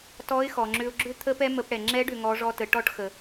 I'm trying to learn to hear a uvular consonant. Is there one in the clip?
no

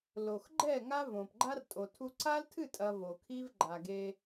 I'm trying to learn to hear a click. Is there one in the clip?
yes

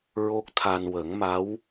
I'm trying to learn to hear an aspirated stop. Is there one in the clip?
yes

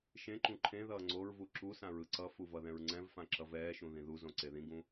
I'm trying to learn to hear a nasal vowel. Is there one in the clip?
yes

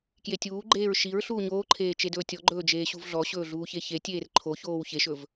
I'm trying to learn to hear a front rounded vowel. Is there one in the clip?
no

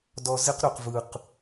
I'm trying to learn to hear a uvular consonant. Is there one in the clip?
yes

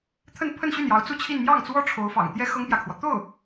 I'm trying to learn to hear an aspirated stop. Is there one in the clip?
yes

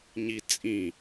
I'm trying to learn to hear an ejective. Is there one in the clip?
yes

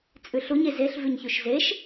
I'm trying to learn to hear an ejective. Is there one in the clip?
yes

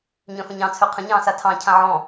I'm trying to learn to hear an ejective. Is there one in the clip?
no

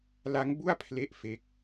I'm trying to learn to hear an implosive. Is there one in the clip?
no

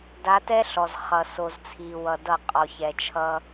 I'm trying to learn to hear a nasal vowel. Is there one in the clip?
no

